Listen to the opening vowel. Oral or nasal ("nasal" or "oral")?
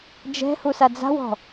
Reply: oral